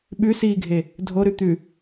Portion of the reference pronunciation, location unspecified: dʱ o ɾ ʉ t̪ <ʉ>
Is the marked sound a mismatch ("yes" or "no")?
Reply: no